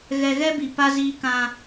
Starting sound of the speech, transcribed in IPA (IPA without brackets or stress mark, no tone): ɣ